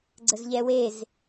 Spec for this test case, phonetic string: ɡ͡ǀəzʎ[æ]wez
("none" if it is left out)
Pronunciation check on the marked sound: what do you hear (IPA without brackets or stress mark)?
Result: ɛ